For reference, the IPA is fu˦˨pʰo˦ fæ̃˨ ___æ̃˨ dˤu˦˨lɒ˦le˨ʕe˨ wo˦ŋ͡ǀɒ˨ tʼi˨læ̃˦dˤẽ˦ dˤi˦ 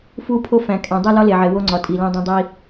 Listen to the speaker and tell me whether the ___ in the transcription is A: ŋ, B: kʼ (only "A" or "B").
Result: B